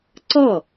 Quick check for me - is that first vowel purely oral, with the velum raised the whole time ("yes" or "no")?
yes